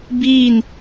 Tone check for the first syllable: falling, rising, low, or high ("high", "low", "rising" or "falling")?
falling